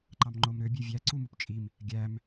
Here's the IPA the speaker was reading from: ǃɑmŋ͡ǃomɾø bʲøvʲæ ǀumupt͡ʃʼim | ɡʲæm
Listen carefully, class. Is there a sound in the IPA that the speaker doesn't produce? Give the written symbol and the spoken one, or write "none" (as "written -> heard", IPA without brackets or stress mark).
none